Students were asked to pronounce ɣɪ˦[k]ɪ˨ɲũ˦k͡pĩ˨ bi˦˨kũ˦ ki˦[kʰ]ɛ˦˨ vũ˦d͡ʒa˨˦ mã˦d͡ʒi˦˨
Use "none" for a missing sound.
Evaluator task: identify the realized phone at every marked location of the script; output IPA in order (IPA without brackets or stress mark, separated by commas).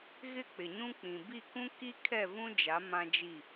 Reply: k͡p, kʰ